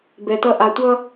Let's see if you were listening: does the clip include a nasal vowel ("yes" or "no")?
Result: no